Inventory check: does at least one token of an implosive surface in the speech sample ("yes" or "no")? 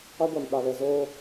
yes